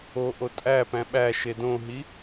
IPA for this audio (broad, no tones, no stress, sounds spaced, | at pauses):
o ʔ o tʼ æ p æ̃ ɓ æ ʃ e d õ ɦ i